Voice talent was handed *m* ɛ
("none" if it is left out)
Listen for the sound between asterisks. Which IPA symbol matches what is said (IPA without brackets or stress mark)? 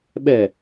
ɓ